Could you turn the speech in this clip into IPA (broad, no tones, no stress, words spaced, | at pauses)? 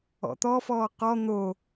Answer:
ɔ̰t̪ɔfɔː qɔ n̪o